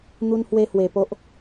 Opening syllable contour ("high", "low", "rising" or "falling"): high